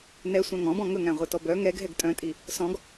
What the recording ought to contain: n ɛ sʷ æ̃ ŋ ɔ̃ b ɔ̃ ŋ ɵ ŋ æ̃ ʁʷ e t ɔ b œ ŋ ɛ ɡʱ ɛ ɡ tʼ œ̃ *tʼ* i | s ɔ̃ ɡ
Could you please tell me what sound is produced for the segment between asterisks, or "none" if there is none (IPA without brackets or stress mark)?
tʼ